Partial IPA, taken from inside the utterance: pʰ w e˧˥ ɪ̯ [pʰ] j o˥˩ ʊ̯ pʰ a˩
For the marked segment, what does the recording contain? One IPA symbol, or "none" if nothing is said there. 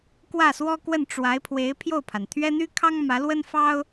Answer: pʰ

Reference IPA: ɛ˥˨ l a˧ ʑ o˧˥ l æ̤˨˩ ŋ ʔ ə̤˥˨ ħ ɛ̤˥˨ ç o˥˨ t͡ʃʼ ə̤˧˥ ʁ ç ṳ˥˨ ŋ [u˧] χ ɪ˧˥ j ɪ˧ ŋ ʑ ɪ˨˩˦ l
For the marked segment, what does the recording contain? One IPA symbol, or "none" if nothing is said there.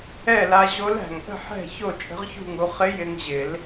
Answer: u˧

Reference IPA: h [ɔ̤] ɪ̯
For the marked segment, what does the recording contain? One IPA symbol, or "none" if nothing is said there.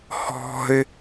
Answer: ɔ̤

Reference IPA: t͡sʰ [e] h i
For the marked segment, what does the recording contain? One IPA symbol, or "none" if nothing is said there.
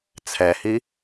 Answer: ɛ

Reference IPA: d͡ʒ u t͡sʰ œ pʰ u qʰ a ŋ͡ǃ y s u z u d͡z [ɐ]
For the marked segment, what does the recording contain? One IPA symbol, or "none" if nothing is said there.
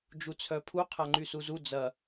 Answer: ɐ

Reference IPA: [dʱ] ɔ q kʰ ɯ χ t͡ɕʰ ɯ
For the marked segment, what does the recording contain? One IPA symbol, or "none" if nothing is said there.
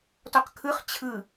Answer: t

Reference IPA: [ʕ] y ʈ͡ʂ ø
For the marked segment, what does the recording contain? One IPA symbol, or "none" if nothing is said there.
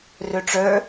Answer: r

